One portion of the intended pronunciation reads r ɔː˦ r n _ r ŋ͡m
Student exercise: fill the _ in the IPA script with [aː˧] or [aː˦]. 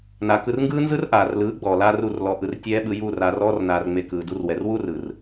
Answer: aː˧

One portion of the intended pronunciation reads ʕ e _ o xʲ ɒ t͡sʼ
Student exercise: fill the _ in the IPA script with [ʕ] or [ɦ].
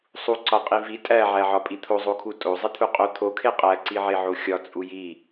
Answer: ʕ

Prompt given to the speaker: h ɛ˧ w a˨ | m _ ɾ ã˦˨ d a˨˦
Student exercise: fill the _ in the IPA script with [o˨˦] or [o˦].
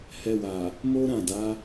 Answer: o˦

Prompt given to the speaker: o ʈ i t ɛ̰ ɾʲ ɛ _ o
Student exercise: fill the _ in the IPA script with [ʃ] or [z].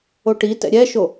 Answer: ʃ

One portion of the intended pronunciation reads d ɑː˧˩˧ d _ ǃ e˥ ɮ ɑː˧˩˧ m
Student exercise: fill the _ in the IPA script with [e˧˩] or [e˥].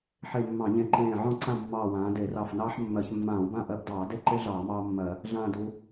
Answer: e˥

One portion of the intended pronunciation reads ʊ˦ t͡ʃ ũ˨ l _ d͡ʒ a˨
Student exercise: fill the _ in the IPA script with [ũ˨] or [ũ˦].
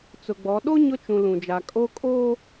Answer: ũ˨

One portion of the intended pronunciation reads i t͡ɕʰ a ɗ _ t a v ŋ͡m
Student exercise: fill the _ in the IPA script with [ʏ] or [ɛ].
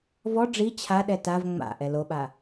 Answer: ɛ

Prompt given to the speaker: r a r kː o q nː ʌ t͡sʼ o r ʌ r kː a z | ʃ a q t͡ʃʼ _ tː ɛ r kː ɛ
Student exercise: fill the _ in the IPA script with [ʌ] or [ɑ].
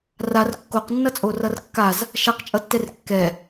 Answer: ʌ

